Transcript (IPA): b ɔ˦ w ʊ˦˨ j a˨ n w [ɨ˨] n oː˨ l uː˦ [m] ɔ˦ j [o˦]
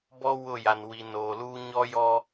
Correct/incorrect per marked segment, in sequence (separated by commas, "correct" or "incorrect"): incorrect, incorrect, incorrect